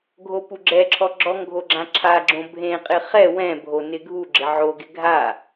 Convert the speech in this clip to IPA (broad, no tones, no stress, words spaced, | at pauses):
ɡʱopuɡ͡ǁɛǁʰɔ ɡ͡ǁɔŋɡʱo ɡ͡ǁãǁʰaɡ͡ǁõ bʱẽqʼɪ χɛ wɛ̃bʱo nɪɡʱuɡ͡ǁɪ ʕoɡɪ ɡʱa